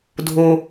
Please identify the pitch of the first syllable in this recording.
high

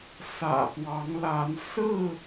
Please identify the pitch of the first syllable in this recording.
low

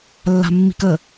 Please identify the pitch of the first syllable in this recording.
low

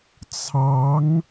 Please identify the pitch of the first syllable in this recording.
rising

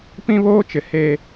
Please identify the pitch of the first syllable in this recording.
high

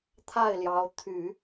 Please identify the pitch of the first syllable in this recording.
falling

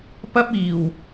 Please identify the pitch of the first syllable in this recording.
high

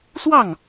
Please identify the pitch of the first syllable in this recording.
falling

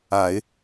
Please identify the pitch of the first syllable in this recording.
low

